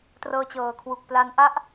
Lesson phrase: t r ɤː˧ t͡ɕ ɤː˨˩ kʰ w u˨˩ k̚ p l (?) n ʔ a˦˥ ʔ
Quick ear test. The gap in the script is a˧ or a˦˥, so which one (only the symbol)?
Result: a˦˥